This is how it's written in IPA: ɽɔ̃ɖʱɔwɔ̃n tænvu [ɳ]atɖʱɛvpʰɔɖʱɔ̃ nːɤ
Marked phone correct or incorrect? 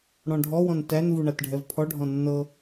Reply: correct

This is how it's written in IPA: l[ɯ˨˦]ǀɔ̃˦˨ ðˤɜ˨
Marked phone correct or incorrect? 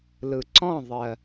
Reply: incorrect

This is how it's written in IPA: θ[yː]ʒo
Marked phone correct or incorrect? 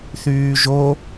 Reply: correct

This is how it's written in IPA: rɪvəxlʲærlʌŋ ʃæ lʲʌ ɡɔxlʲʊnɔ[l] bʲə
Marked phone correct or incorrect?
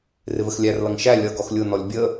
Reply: incorrect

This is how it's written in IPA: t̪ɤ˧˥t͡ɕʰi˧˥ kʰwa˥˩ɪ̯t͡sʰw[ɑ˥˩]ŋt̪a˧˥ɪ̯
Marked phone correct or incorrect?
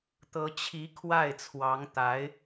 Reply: incorrect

